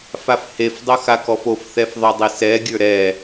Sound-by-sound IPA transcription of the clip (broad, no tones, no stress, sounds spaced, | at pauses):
f a f h e f dˤ ɵ x a k ɔ f o f θ ɛ f ðˤ œ dˤ i s ɛ ɡʲ ə˞ ɾ ɛ